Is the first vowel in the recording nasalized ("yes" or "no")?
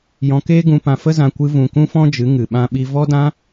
yes